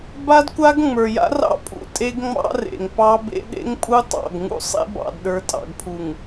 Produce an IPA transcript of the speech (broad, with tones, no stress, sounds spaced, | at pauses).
b a˦ d kʷ a˦ ɡ ŋ͡m ə˞˨ j a̰˦ r ɑ̰˦ pʼ ṵ˦ tʼ e˦ ɡ ŋ͡m ɑ̰˦ r ḛ˨ ŋ p ɑ˦ b ḛ˦ ɗ ḛ˦ ŋ pʼ u˦ tˤ ɑ̰˦˨ ɡ ŋ ṵ˦ sˤ ḛ˦ b ɑ̰˨ d ɗ ə˞˨ tʼ ɑ̰˨ ɡ pʰ u˨ ŋ